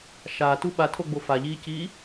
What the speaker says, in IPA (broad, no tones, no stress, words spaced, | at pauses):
ʃaːtu ɓatʰoɡ͡bo faʎiːciː